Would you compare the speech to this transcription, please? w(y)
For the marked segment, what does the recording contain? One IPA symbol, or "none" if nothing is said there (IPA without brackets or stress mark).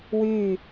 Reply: y